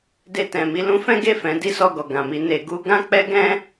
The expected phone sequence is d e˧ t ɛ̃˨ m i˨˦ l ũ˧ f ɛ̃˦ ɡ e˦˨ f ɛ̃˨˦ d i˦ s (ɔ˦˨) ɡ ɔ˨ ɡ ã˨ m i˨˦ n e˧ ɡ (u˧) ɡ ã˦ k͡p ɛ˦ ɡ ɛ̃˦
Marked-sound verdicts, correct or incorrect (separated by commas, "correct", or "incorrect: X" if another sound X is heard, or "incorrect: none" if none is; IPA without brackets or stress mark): correct, incorrect: u˦